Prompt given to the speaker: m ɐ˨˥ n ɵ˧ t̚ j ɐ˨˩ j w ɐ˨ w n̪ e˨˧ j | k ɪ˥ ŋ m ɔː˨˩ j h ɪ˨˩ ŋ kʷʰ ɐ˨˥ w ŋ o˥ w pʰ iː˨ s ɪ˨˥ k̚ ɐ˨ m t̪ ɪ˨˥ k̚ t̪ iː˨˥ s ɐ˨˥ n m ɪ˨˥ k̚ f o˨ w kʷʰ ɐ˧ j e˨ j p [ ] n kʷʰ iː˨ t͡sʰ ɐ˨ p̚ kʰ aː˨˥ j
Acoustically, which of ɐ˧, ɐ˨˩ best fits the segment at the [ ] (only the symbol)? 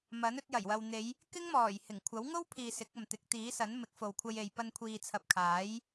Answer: ɐ˧